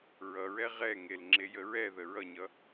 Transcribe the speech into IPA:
ɹ ʌ ɹ ɛ ʁ ɛ ŋ e l ŋ͡ǁ e j ə ɹ ɛ ð ə ɹ ʌ ɲ ʌ

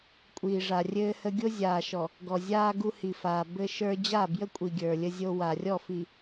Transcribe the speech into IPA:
kʷʼ iː˨ ʐ a˨ rʲ ɘː˦ h ə˦ ɡʲ o˦ zʲ aː˨ ʃ ɔ˨ | ɡ ɔ˨ zʲ aː˦ ɡ u˦ h i˨ f aː˨ b ɘ˦ ʃ ə˞˦ d͡ʑ a˦˨ b j ə˦ kʷʼ i˨ ɡʲ ə˞˨ lʲ ə˦ zʲ o˦ w a˨ rʲ ɔ˦˨ f i˨

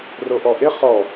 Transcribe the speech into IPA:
r o ʔ ɔ ʔ ɪ χ ɔ

